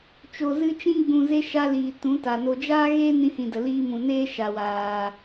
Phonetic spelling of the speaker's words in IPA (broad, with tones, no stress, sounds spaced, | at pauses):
t͡ʃ o˨ z ɨ˧ t͡ʃ ĩ˧ ɡ͡b ũ˨ z e˧ ʃ a˧ l iː˨ t ũ˨˦ t a˨ n o˧ d͡ʒ aː˦ ɣ eː˦ n ĩ˧ h ĩ˨ d ə˨ l iː˧ m ũ˨ n eː˦ ʃ a˨ w aː˨